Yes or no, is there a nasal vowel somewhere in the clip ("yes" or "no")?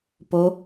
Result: no